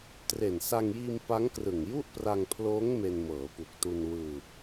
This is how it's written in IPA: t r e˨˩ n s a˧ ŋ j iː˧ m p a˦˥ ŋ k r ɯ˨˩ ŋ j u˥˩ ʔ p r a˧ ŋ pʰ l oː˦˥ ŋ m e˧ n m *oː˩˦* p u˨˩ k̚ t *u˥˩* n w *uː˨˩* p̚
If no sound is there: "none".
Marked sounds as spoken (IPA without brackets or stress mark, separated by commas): ɤː˩˦, u˧, ɯː˨˩